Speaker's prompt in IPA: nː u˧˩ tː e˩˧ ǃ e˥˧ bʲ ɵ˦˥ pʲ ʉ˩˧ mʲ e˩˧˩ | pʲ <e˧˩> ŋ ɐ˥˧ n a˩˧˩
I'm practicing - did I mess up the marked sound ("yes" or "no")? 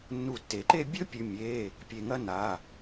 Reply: no